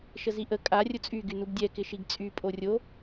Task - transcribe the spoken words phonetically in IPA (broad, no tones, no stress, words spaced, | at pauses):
ʃəziʔə kʼa rʲʊt͡sʼy ɡynubdʲɛ kɪʃiɡt͡sʼy pʼorʲo